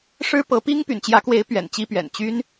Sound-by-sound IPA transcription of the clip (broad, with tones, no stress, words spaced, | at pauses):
ʂɻ̩˥ pɤ˧˥pi˥ŋ py̰˨˩nt͡ɕjä˧˥kwe˧˥ɪ̯ pɥɛ̰˨˩nt͡ɕi˥pɥɛ̰˨˩n t͡ɕy˥n